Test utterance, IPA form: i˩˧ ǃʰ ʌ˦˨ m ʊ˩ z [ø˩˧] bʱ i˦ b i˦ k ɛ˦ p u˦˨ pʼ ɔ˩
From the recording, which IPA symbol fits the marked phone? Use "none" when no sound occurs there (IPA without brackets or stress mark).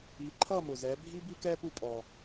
ɛ˩˧